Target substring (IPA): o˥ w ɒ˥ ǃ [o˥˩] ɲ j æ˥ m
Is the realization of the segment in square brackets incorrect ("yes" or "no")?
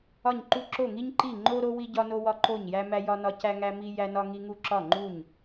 no